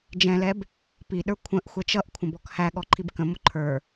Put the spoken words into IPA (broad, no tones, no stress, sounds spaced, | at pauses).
d͡ʒ ɛ̃ l ɛ b | p i ɗ ə˞ kʷʰ ə̃ ʔ xʷ ɛ t͡ʃ ʌ ʔ kʷʰ ə̃ b ɔ k h æ ɠ ɔ ǃʰ i b k ə̃ m ʊ ǃʰ ə˞